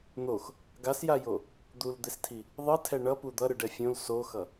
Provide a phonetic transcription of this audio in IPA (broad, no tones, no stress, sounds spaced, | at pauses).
n̪ o x | ɡ a s j a j o | d̪ u l d̪ e s tʰ i | ðˤ ɯ tʰ ɛ ɳ ʌ p u d̪ ʌ ɾ ɯ ɖ ɛ fʲ õ l s o x ʌ